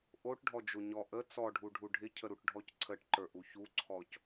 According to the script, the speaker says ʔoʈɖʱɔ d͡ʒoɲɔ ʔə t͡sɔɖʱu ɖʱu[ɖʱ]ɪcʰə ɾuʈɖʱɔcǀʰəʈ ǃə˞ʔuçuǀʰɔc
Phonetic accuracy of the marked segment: correct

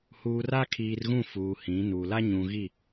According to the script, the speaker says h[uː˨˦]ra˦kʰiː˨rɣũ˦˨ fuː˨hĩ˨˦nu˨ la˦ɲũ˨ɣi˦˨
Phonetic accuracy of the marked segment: incorrect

